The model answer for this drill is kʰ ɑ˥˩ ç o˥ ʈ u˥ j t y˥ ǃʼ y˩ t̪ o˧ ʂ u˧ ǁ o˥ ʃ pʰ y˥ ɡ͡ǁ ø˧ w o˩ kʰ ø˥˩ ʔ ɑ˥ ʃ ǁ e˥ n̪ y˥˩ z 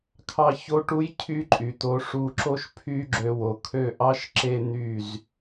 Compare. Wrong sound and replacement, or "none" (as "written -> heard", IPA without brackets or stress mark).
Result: t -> cʰ